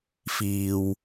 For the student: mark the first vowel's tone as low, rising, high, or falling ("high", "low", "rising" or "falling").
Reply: low